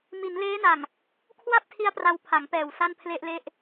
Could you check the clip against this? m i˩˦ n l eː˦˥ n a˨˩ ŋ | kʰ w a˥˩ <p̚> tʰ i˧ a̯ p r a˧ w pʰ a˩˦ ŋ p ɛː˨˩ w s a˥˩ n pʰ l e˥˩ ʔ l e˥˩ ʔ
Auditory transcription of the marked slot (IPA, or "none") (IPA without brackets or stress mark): p̚